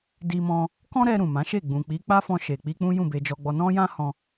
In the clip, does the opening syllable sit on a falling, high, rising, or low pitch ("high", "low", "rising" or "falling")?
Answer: high